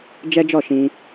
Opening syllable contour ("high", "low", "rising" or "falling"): high